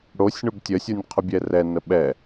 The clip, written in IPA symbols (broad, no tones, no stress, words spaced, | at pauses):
ɽosʲɳʊb tʲəsʲonʲqʰʊbʲɛ rɛnə ɓɛ